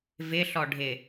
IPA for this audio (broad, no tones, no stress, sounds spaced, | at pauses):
v ɪ ɬ ɔ ɖʱ ɪ